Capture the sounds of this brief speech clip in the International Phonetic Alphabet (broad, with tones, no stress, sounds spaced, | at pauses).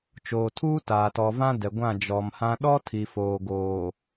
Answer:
t͡ʃ oː˨ tʰ uː˦ t aː˨ t ɔ˨ v ã˦ d ɛ˨ ɡʷ ã˦˨ d͡ʒ ɔ˨ m h ã˦ ɗ ɔ˦ tʰ i˨ f oː˨ ɡ oː˨